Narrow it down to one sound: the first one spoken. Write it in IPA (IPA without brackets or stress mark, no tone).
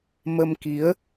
m